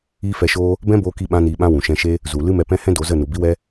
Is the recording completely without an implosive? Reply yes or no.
no